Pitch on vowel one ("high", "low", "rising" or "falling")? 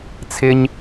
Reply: high